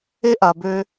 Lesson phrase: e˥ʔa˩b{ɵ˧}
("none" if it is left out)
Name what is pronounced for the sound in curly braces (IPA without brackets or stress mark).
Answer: ø˧